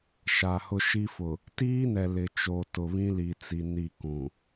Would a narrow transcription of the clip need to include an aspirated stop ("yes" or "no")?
no